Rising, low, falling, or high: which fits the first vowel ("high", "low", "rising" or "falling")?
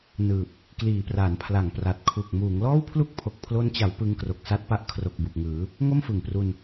low